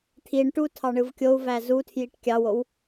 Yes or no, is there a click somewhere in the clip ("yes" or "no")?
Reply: no